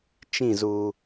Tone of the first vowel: falling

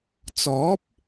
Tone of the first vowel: rising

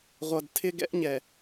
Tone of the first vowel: low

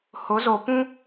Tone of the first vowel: rising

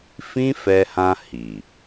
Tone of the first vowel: high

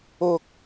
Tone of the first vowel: high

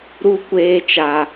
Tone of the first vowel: low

